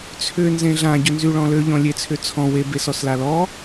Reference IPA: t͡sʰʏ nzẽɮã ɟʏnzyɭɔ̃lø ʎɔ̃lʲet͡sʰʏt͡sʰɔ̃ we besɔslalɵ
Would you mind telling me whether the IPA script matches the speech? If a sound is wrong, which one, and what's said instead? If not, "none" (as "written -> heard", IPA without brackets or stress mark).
ɵ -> ɔ